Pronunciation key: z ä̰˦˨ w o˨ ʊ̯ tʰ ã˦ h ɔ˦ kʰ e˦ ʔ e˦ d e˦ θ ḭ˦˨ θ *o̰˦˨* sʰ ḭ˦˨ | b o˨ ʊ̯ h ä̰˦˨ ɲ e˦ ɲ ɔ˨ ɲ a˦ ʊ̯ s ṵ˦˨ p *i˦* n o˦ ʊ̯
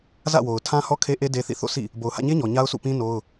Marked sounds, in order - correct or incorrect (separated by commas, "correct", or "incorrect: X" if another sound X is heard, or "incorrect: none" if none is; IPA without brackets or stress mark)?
correct, incorrect: ĩ˦